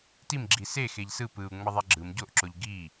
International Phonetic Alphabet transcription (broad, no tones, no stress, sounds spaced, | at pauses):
t i m ɡ͡ǁ i s e x e ʎ s ɯ p ɯ u̯ ŋ͡m ʌ ðˤ ɛ ɡ͡ǁ ɯ m ɟ o ʔ ǁ o ʎ ɡ i